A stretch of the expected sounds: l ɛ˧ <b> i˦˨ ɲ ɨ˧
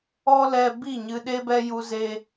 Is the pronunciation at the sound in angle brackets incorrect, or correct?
correct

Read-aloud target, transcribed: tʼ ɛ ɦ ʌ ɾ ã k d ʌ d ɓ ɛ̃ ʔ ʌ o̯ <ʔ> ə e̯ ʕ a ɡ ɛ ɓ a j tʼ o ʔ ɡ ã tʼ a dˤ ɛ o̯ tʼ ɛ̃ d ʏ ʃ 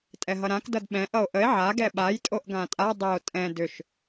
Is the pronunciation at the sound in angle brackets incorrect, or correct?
correct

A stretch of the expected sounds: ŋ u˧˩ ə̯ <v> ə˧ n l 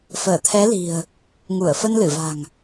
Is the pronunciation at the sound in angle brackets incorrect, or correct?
incorrect: f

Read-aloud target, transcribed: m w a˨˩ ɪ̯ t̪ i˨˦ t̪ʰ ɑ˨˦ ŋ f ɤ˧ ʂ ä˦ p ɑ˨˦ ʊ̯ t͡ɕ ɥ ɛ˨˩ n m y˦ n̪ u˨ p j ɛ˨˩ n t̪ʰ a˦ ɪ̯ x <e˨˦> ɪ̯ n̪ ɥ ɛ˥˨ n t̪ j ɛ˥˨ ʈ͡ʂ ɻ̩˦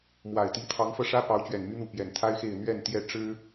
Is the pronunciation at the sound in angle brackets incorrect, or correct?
incorrect: e˥˨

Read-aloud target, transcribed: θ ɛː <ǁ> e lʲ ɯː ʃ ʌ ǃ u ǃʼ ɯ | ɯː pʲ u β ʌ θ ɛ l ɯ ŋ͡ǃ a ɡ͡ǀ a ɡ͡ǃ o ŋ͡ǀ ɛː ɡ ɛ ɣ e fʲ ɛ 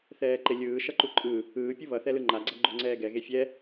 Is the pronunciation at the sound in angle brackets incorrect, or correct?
incorrect: ǃ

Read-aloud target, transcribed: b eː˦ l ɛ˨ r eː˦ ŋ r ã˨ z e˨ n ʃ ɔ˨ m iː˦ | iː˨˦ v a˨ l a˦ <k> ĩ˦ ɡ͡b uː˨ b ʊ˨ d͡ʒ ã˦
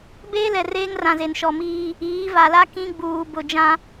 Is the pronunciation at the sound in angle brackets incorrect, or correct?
correct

